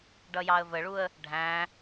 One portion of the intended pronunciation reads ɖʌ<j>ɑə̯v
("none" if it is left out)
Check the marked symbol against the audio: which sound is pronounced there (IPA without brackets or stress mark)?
j